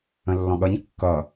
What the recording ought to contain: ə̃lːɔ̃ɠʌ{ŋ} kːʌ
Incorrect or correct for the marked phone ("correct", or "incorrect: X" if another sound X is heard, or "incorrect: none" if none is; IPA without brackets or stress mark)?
incorrect: ɲ